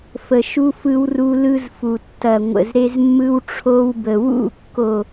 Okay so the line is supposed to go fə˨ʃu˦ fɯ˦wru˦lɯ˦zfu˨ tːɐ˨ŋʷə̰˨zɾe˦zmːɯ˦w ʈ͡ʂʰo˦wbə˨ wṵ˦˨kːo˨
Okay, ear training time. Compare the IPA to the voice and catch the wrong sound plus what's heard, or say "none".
none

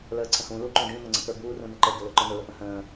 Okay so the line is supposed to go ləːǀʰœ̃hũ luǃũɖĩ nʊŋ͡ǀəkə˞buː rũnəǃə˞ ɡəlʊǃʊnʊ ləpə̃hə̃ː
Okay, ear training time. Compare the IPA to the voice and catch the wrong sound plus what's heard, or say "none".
œ̃ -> ə̃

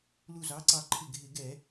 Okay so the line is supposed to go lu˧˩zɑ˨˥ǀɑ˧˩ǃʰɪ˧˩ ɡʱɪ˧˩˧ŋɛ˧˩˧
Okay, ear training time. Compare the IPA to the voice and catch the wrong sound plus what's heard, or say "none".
ŋ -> ɡ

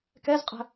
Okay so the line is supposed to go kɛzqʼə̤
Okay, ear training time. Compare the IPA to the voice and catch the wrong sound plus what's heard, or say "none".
none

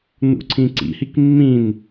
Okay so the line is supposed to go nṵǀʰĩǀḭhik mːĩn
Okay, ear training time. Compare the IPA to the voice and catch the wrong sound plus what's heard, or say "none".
none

